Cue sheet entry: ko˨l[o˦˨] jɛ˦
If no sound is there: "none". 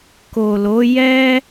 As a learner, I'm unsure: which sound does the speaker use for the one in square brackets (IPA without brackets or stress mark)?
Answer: o˨˦